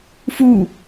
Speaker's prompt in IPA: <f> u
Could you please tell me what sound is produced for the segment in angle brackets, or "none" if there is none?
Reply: f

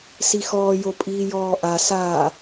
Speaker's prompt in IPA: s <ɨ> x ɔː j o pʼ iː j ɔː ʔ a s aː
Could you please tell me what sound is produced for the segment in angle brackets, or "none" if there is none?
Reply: i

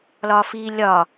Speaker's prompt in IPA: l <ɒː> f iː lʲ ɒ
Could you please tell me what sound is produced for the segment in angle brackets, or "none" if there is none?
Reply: ɒː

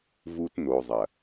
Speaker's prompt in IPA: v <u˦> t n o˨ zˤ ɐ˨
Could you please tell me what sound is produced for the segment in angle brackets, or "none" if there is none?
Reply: u˦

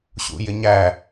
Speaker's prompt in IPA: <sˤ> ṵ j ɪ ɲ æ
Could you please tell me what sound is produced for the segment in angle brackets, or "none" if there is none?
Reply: ɕ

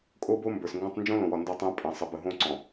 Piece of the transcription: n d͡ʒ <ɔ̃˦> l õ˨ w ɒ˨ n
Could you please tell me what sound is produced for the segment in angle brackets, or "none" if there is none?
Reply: õ˦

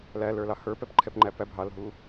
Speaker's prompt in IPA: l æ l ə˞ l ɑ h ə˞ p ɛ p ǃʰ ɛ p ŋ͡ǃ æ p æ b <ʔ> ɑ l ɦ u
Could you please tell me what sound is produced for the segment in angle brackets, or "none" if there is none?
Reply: ɦ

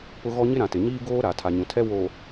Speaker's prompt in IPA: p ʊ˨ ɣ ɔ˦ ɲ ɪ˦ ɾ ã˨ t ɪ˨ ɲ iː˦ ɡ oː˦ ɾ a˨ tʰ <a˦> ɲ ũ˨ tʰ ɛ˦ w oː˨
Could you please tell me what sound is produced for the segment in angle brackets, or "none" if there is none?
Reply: a˨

